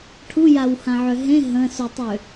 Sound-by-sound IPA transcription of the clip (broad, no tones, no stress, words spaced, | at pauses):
ʈʰujawhãʕø ɦẽ ɦə̃sutˤø